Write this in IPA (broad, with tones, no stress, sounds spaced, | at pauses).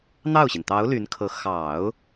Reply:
n̪ ɑ˥˩ ʊ̯ ɕ i˩ n t̪ ɑ˧˥ ʊ̯ l y˧˥ n kʰ ɤ˧˥ x ɑ˨˩˦ ʊ̯